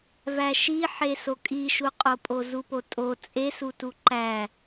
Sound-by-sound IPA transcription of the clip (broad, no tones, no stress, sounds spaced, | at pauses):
v æ ʃ i ħ e s o kʼ i ʃ u qʼ o pʼ o z u p o tʼ o t͡sʼ e s u t u ǃ æ